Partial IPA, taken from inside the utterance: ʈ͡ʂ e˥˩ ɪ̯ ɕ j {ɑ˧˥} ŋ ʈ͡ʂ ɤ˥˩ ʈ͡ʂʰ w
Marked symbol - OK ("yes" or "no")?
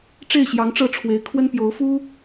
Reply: yes